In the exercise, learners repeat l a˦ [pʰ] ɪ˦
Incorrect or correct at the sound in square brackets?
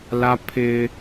correct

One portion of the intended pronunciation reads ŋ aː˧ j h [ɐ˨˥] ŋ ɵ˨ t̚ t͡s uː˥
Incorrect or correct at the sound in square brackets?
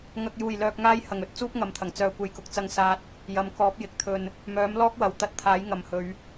incorrect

